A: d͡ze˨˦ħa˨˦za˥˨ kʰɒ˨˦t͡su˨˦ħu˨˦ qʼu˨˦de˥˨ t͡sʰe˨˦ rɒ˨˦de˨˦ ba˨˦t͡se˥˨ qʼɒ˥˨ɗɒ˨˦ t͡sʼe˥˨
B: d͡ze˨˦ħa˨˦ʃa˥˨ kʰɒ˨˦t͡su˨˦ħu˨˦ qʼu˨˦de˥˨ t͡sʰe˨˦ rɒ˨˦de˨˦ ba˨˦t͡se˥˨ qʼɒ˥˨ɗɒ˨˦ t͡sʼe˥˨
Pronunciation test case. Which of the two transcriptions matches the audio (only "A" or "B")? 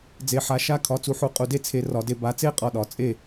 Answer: B